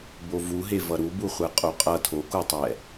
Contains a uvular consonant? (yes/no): yes